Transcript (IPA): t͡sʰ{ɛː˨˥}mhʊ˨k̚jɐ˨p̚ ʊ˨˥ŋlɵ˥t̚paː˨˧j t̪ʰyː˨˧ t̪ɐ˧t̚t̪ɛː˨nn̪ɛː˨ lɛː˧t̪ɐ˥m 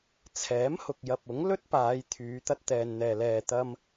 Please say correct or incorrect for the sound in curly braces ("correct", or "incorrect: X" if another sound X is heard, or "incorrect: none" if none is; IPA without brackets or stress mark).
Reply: correct